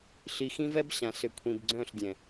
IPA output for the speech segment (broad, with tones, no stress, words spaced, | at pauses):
ɬi˨xĩ˦vɛ˦bɕã˨ sʏ˨kʷʰĩ˨bɡ͡ǀœ̃˦˨ɬdʲɛ̃˨